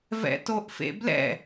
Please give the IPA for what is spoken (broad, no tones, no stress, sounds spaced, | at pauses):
v ɛ̰ t o ʔ f ḛ b l ɛ̰